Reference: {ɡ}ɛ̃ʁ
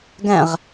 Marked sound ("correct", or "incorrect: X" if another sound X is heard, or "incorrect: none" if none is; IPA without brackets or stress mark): correct